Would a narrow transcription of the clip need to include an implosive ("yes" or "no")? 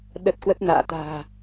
yes